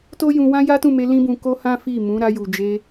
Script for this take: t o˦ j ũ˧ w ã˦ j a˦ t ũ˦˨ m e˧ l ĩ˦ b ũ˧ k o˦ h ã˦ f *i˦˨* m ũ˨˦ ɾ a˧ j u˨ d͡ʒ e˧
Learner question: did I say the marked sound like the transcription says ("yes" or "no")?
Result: yes